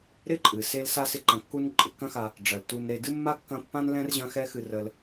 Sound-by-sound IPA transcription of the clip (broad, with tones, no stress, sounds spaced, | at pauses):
ɾ ɪ˥ ǃʼ ɨ˩ s e˦ l s a˥ s ɪ˦ ǃ ɐ̃˨ kː u˦ n ǃʼ ɪ˩ kː ɐ̃˦ x a˨ | ɖ͡ʐ ɐ˩ l t u˨ n ɾ e˨ d ɨ˥ mː a˥ kː ɐ̃˦ pː ã˥ n l ɛ̃˥ r ʑ ɐ̃˦ x ɛ˦ x ɨ˨ r ə˨ l